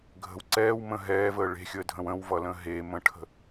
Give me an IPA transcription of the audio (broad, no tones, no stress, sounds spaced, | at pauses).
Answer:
ɡʱ ə̤ w ǀ ɛː w m ə̃ ɦ ɛː v əː ɭ e̤ xʲ əː dʱ ə̃ w ə̃ w v ʌ l ə̃ ɦ e m ə̃ ʈʰ ə̤